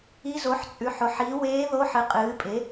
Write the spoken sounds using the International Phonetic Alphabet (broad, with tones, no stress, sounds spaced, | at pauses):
i˧˥ z o˩˥ ħ t͡sʼ ʉ˩˥ ħ o˩˥ ħ i˩˥ w eː˧˥ ð o˧˥ ħ ɨ˩˥ qʼ ɨː˩˥ pʼ e˩˥